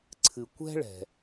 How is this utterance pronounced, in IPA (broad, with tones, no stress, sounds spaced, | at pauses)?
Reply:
ǀʰ ɨ˩ kʷ ɛ̤˥ ɭ ɛ̤˩